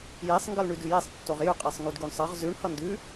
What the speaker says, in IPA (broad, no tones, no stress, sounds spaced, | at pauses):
j e sˤ ŋ ɡ ʌ l ɳ ʉ d ʉ j e sˤ tː o ʁ j ʉ qʼ e sˤ ŋ y d ɡ y ɳ sˤ ʌ ʁ z ʉ ɳ h ʌ n d ʉ